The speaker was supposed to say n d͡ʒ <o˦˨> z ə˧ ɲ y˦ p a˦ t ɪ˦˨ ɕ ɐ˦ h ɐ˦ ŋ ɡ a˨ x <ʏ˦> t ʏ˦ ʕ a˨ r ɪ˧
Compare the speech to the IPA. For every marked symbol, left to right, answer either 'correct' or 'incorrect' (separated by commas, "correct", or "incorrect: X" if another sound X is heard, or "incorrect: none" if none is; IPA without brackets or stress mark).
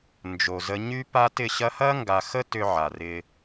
incorrect: o˨, incorrect: ə˦